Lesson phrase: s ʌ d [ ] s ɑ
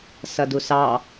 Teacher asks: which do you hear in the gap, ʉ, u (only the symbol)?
u